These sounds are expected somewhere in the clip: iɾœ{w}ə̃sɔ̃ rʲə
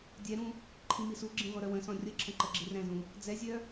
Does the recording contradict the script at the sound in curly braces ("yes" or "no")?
no